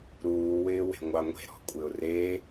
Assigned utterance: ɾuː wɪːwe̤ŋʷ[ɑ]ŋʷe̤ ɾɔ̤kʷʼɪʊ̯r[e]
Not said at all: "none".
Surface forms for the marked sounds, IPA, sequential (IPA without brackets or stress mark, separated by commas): ɑ, e